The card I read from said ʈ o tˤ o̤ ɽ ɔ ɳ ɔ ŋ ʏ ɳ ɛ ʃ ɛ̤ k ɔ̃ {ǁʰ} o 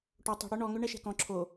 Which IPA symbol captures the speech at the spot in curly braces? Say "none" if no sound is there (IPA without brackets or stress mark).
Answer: ǁʰ